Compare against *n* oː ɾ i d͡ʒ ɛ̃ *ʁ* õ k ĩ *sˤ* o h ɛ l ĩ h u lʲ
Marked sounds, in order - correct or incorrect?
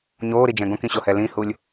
incorrect: ɲ, incorrect: ɡ, incorrect: ɕ

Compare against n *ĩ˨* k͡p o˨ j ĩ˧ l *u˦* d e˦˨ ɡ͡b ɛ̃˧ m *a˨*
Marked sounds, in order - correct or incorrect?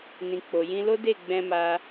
correct, incorrect: o˦, incorrect: a˧

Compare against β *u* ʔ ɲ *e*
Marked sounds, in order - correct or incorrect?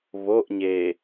incorrect: o, correct

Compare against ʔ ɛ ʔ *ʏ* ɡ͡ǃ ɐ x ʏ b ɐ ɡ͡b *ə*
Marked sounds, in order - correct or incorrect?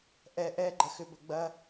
incorrect: ɛ, incorrect: ɐ

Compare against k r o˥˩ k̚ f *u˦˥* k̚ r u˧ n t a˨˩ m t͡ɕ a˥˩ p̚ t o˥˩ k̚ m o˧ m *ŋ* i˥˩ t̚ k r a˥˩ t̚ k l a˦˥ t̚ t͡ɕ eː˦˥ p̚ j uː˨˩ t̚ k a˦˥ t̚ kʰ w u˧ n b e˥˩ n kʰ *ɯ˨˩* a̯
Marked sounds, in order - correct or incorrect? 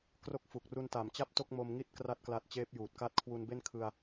incorrect: u˨˩, correct, incorrect: ɯ˧

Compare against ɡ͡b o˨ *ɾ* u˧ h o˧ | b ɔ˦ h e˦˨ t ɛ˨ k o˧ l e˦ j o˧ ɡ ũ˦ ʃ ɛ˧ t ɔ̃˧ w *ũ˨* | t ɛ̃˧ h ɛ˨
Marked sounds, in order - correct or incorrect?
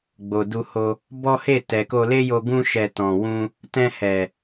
incorrect: d, incorrect: ũ˧

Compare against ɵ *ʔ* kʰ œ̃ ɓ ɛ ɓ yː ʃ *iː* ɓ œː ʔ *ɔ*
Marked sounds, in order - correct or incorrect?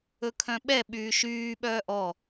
incorrect: none, incorrect: yː, correct

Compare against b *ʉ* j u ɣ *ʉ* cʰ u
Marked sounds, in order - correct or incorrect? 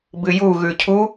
incorrect: ɨ, correct

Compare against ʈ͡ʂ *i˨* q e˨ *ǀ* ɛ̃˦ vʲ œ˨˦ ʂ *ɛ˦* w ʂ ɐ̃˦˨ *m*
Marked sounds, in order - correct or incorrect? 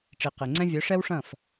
correct, incorrect: ŋ͡ǀ, correct, incorrect: f

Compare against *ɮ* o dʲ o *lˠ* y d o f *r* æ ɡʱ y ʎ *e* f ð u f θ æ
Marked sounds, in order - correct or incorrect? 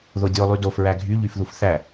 incorrect: ð, correct, incorrect: ɹ, incorrect: y

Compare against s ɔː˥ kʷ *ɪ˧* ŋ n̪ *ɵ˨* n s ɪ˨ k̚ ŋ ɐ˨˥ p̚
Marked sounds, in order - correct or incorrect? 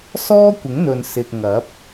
incorrect: ɪ˨˥, correct

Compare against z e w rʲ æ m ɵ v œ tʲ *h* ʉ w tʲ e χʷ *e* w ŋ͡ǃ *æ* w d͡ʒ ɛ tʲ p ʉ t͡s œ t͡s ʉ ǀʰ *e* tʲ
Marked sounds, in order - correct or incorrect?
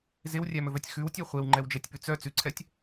incorrect: x, correct, incorrect: ɛ, incorrect: ɛ

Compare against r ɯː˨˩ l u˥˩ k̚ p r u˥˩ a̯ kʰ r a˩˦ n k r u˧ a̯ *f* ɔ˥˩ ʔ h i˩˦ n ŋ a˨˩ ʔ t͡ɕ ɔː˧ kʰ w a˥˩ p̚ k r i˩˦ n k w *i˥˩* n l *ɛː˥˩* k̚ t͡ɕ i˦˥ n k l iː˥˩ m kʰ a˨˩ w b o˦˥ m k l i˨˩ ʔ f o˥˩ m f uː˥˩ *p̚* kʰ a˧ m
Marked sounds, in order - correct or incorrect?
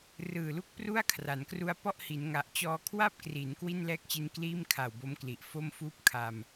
incorrect: p, correct, correct, correct

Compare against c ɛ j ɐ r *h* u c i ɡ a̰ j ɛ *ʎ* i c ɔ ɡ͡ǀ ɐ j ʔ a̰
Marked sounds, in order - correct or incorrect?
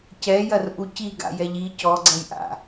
incorrect: ʔ, correct

